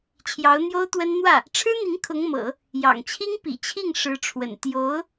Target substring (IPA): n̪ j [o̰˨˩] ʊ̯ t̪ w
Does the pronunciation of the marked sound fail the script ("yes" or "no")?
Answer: yes